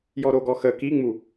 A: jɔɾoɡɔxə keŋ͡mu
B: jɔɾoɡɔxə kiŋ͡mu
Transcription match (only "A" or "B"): B